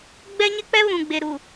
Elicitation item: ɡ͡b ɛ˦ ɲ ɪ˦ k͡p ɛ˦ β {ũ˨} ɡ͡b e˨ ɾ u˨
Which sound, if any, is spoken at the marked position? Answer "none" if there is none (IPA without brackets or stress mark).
ũ˨